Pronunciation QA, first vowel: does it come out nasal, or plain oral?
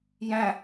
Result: nasal